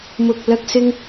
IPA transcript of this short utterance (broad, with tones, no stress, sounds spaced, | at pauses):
m ʊ˧ k̚ l ɐ˥ k̚ s ɪ˥ ŋ